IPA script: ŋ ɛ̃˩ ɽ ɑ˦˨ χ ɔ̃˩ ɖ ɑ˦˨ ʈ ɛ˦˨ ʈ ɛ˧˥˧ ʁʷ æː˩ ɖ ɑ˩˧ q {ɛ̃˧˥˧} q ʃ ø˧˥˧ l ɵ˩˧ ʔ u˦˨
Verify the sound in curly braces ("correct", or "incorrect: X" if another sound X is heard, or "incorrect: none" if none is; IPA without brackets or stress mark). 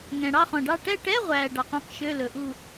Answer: incorrect: œ̃˧˥˧